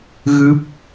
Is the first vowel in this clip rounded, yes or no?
no